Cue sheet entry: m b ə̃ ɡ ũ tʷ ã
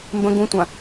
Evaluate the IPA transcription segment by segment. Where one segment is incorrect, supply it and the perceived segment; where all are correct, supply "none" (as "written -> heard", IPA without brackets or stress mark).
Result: none